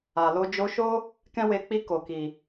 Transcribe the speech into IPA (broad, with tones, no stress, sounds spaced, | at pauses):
a˨ l o˧ d͡ʒ o˧ ʃ o˦ | k ɛ̃˦ w e˧ k͡p i˧ k o˨ k i˨